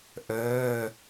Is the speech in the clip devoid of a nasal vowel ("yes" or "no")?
yes